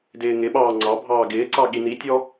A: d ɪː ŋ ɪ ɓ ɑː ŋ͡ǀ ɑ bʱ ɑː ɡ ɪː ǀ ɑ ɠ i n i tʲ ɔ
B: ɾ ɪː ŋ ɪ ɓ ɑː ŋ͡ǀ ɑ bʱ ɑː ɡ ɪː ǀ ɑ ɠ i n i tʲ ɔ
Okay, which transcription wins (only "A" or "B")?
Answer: A